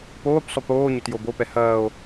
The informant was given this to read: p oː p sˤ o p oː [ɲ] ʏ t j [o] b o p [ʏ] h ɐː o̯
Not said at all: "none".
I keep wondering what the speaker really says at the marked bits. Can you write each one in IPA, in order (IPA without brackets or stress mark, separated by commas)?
ɲ, o, ɛ